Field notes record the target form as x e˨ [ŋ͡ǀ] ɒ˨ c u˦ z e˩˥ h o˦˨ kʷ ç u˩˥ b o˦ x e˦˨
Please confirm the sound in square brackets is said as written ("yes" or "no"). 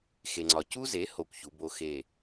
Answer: yes